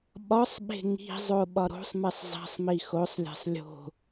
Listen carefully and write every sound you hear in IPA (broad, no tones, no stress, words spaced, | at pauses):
ɓɒsˤɓe̤ ŋi̤zˤo ɓɒɾo̤sˤmesˤ zˤe̤sˤmi xosˤlʲe̤sˤ lʲo̤